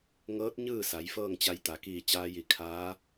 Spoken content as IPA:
ŋ ɤː˧˥ t̚ ɲ ɯː˥˨ s a˩˧ j f ɤː˥˨ ŋ t͡ɕ a˧ j t̪ a˩ k iː˧˩ t͡ɕ aː˧ j i˧˩ kʰ aː˧˥

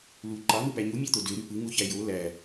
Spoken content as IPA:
l u ǃ ɑ n̪ ɯ p æ ɲ u mʲ ɑ t̪ o d ø ɾ y p ɯ ŋ u ç æ j o l æ

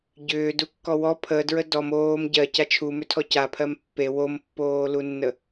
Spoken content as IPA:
ɟ ʏː d u kː ɔ w ɔ pʰ ə d ɹ ə d ɔ m oː m ɟ ɜ c a t͡ʃʰ u m ʏ tʰ ɔ c a pʰ ɜ m pː e w o m pː oː l u nː ə

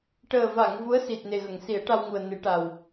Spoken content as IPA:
ʈ əː˨˩ v a˨˩˨ ŋ v u˧˥ ə̯ s i˨˩ t̚ n e˨˩ ɣ ə˨˩˨ ŋ s i˨˩˦ ə̯ ʈ a˧ w ŋ u˨˩ ə̯ n ɨ˨˩˦ ʈ a˨˩ w

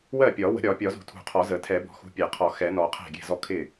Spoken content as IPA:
w ɜ˥˩ pʲ ɒ˨˩˦ w ə̤˨˩˦ ɾʲ ɒ˨˩˦ pʲ ɒ˨˩˦ z ṳ˨˩˦ tʰ ṳ˨˩˦ qʰ ɔ˨˩˦ z ə˨˩˦ tʰ ɛ˨˩˦ b ɔ̤˨˩˦ x ṳ˨˩˦ pʲ æ˨˩˦ qʰ ɔ˨˩˦ x ɛ˨˩˦ n ɔ˨˩˦ qʰ æ̤˥˩ ɡʲ ɛ̤˥˩ z ɔ˥˩ kʰ ɪ˥˩

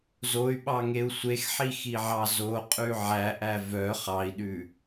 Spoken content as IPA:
z o y̯ ɓ ɑ ŋ e u̯ sʷ e x ħ i x i ʕ ɑ z o qʼ ʉ ʕ æ ʔ æ v œ χ ɑ i̯ ɗ ʉ

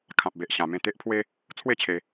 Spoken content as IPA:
kʰ ã˨ p̚ b e˨ ʔ ɕ ã˧ m ẽ˥˧ t̪ e˦ ʔ pʰ w e˦ | t͡sʰ w e˥˧ t͡ɕʰ e˧

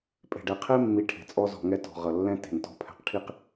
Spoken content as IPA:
pʼ e̤˨ ɖ ɛ˨ qʰ e˦ mː i˨ ʈʰ e̤˨ t͡sʼ ɔ˦ z ɔ̤˨ ŋ ɛ˦ t ɔ̤˨ ʁ ʌ˨ lː ɛ̃˦ t e̤˨ n t ɔ̤˦ pʰ ɛ̤˨ q ʈʰ i˦ q

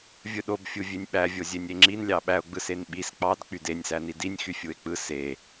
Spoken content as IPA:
vʲ ɯ ɗ o b fʲ u vʲ e nʲ ɓ æ vʲ o zʲ e nʲ e ŋ͡ǁ i n lʲ ɑ ɓ æ o̯ ɡ͡b ɯ s e n ɓ i s k͡p ɑ d k͡p y d e nʲ s æ n i d i nʲ x y fʲ u e̯ k͡p ɯ s e

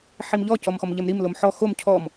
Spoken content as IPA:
ħ i m ʎ ɔ c ɔ m x ɔ m ʎ ɛ m ɾ i m l o m ħ ɔ x o m cʰ ɔ m

